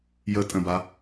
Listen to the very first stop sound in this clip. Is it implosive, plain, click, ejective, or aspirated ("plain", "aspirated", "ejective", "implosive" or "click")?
ejective